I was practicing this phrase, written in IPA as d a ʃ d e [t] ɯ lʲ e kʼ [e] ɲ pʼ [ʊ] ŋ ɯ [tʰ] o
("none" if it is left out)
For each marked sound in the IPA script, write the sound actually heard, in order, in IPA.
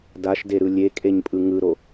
ɾ, e, ɯ, ɾ

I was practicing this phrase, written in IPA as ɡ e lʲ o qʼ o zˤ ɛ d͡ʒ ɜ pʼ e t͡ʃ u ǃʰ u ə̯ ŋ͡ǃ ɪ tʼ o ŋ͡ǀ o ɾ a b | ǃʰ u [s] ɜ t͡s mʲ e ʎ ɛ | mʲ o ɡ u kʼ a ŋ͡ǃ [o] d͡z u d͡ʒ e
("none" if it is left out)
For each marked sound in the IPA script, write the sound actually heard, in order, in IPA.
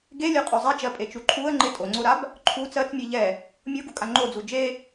t͡s, o

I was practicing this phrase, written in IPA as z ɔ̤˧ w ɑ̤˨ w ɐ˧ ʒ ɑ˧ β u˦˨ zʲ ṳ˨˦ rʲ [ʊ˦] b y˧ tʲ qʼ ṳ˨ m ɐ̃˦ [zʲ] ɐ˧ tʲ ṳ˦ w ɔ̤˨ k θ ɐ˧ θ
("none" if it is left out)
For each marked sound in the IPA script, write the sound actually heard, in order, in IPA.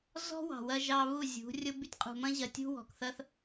ʊ˦, ʑ

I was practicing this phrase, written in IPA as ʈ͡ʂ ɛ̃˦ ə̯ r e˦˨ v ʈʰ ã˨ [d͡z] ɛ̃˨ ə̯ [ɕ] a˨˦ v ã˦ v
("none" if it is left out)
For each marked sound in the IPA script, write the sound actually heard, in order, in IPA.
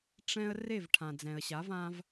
d͡z, ɕ

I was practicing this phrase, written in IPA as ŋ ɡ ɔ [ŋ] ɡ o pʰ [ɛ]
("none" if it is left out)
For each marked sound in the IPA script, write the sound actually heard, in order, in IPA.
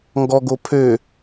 none, ø

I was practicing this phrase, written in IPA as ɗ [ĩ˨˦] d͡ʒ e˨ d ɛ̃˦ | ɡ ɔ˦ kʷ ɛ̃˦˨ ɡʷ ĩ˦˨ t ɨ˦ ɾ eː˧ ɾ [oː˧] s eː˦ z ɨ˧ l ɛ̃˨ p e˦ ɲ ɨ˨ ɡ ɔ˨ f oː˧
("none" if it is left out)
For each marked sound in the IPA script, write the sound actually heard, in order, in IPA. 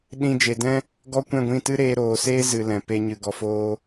ĩ˧, oː˨

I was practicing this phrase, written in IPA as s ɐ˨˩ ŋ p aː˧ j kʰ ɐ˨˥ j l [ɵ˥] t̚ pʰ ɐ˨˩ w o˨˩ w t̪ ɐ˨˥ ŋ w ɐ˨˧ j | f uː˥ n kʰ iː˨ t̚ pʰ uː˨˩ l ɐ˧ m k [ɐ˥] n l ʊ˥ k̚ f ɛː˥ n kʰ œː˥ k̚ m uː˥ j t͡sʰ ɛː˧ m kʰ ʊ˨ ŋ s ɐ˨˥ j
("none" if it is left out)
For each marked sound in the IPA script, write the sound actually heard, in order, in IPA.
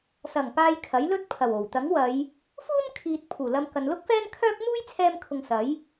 ɵ˥, ɐ˨

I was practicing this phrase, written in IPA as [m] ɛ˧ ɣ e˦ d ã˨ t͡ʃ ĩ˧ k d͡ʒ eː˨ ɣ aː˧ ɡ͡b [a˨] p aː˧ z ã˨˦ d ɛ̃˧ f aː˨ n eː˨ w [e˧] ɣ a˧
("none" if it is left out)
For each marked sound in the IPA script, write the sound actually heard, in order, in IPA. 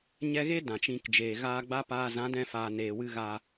ɲ, a˦, ɨ˧

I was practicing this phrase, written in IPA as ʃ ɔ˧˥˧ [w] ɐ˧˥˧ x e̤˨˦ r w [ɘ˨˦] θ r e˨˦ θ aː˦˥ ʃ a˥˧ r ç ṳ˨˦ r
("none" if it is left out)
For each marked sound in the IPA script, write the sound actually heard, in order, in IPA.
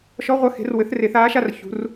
ʁʷ, ɘ˨˦

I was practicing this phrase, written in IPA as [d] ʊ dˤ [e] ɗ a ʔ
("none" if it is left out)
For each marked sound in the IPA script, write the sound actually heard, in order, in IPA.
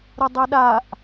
ɾ, e

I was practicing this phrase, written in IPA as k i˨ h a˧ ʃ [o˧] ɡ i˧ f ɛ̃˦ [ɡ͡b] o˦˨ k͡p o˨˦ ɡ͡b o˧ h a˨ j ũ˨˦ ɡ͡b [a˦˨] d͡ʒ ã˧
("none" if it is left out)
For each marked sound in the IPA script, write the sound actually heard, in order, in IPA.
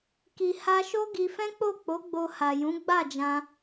o˦, k͡p, a˦˨

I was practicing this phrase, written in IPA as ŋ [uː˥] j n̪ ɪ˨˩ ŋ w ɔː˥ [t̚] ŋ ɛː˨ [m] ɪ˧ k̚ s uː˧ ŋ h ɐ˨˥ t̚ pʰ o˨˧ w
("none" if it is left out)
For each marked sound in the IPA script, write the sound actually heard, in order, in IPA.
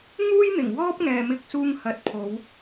uː˥, p̚, m

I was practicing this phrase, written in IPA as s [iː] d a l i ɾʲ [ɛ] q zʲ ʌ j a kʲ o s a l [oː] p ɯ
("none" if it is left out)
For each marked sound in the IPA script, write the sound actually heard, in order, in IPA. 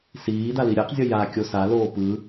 iː, ɛ, oː

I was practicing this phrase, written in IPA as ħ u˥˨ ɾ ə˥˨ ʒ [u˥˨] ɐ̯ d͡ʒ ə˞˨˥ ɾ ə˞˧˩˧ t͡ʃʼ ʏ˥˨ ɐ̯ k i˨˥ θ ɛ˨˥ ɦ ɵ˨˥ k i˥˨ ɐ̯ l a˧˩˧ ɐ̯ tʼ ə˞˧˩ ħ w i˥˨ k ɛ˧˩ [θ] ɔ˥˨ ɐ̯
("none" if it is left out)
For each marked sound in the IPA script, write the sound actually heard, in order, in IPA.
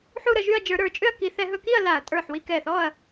y˥˨, θ

